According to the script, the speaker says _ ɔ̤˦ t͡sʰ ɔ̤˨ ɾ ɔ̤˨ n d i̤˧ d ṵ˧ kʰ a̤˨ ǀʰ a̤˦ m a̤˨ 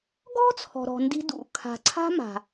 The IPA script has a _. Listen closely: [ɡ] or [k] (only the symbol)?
ɡ